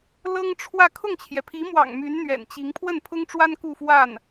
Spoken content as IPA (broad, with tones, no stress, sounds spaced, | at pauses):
l ɤ˥ ŋ ʈ͡ʂʰ w ä˥˧ kʰ ʊ˥˩ ŋ t͡ɕʰ j ɛ˩ pʰ i˧˥ m w ɑ̰˨˩ ŋ m y˧˥ n n̪ ɥ ɛ̰˨˩ n t͡ɕ i˧˥ ŋ pʰ w ə˥˩ n pʰ ʊ˥ ŋ ʈ͡ʂ w a˥ n k u˥˧ f w a˥˩ n